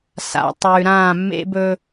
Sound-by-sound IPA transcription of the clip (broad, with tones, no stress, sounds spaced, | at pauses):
s a̰˨ tˤ ʉː˨ ɾ ãː˦˨ mː ḛ˦ b ɵ˦